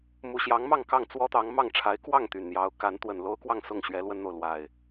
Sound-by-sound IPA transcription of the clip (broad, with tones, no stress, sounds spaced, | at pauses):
m u˨˩ ɕ j ɑ˨˦ ŋ m ɑ˥˨ ŋ k ɑ˥˨ ŋ t͡s w ɔ˦ t̪ ɑ˨˦ ŋ m ɑ˥˨ ŋ ʈ͡ʂʰ a˨˦ ɪ̯ k w ɑ˥˨ ŋ t̪ y˨˩ n n̪ j ɑ˨˦ ʊ̯ k a˨˦ n t̪ w ə˨˩ n l o˦ ʊ̯ k w ɑ˥˨ ŋ s ʊ˥˨ ŋ ɕ ɥ ɛ˨˦ l w ə˦ n n̪ o˨ ʊ̯ l w a˨˩ ɪ̯